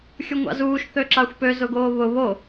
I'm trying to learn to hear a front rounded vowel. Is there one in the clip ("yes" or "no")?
yes